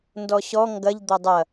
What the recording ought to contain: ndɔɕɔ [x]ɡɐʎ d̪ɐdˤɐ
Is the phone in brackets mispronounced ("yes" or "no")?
yes